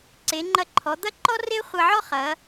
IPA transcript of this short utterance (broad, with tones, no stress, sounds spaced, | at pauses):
ǀ e˩˧ ŋ͡ǃ ɐ˧ ǃʰ ɔ˩˧ d̪ ɐ˥˧ ǃ ɔ˥ r e˥ χʷ ɐ˧ ʕ ɔ˥ χ ɐ˩˧